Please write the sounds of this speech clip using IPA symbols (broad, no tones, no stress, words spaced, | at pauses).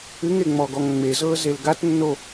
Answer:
ɨŋeŋ͡mɔɡɔŋ ŋ͡mezɤːzel ɡatnːo